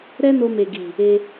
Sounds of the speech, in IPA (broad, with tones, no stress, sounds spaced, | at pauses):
ɾ ɛ˦ n o˧ m e˨ ɡ i˨ | e˧